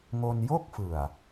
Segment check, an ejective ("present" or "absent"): absent